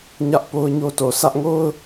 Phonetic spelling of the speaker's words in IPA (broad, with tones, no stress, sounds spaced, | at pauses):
ɲ ä˦ ʔ p o˦ ʊ̯ ɲ o˦ t o˨ sʰ ä˦ ʔ ŋ o˦ ʊ̯